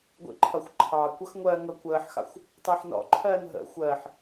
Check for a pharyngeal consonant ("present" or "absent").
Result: present